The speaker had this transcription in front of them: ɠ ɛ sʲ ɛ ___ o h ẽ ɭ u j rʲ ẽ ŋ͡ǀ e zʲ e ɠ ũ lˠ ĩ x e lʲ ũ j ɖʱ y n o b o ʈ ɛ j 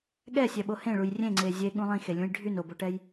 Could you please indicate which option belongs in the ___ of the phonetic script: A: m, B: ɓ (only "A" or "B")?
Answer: B